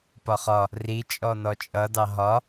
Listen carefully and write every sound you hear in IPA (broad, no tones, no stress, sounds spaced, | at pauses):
p ɒ χ ɒ | r i t͡ʃʼ ɔ n ɔ t͡ʃʼ ʌ d ɑ ɦ ɒ